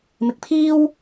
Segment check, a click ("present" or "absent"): absent